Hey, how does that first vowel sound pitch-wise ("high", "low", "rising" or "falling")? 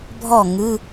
falling